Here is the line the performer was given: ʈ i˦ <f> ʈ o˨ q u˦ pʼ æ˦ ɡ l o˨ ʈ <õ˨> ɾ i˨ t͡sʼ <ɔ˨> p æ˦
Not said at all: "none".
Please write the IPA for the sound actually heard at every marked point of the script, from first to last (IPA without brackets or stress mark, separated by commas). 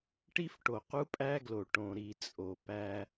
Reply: f, õ˨, o˨